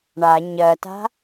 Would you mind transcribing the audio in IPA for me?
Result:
ɳ a ɲ ɜ t a̤

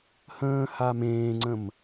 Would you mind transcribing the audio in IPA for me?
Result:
h ə̃ː h a m ẽː ŋ͡ǀ ə̃ m

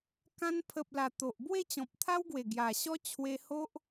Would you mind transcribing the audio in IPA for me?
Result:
k ã˧ n pʰ ə˨ p̚ l a˨˩ t̪ o˨ ʔ b w e˥˧ t͡ɕ ɔ̃˨ p̚ t̪ʰ a˦ w ɡ w e˨˩ ɡ j a˨˩ ɕ ɔ˦ t͡ɕʰ w e˧ h o˦ ʔ

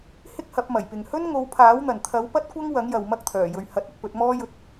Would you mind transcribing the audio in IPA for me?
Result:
h ɪ˥ k̚ h ɐ˨˥ p̚ m ɐ˨˩ j p ɪ˨ ŋ h ɵ˥ n ŋ o˨˧ w pʰ aː˨˥ w n̪ ɐ˨˩ n t̪ʰ ɐ˨˥ w p ɐ˥ t̚ kʷ ɐ˥ ŋ w ɐ˨˥ ŋ j ɐ˨ w m ɐ˥ k̚ t̪ʰ œː˨˩ j ɵ˨ ɥ h ɐ˧ t̚ ɐ˨˥ k̚ p ɵ˨˥ t̚ m ɔː˥ j ɵ˧ t̚

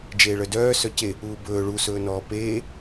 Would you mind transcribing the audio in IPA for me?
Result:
d͡ʒ eː ɭ œ d œː s œ c e | uː b ɵː ɭ u s ɵː n ɔː p eː

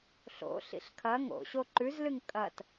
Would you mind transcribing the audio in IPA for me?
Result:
ɬ o̰ ɬ ḭ ɬ kʰ ɐ ŋ o̰ ɕ o ǃ ʉ z l ɨ ŋ kʼ ɐ t

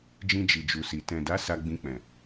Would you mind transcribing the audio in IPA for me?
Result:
d͡ʒ ĩ˧ d͡ʒ i˨ d͡ʒ u˨ s i˨ t ɛ̃˨ d a˨˦ s a˧ ɡ͡b ĩ˧ k͡p ɛ̃˨

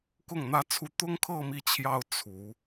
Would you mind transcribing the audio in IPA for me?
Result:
k ʊ˥˩ ŋ n̪ ä˥ t͡sʰ u˥ t̪ ʊ˥ ŋ kʰ ɤ˥˧ m i˥˩ t͡ɕʰ j ɑ˥ ʊ̯ t͡sʰ u˧˥

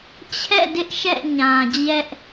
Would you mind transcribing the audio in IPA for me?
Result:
t͡ɕʰ ɛ̰˦˨ d ɪ˦ ʔ ʃ ɛ̰˦˨ ɲ ã˨ d͡ʑ ɛ˦ ʔ

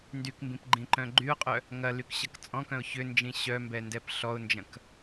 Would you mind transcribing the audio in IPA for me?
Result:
n d y k m b ĩ p ɡ͡ǃ ĩ ǃ œ̃ ɡ͡ǃ y ʊ̯ qʼ œ | ŋ ɐ l y k ɕ ɐ k t͡sʼ ɔ̃ k œ̃ ʊ̯ ç ʏ n d͡ʒ ĩ ɕ œ m b ɛ n d ɛ p ɬ ɔ ʊ̯ n d͡ʒ ɐ̃ k

